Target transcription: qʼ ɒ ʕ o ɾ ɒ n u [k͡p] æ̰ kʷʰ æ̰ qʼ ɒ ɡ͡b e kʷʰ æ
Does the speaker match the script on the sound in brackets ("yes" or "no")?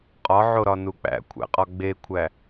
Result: yes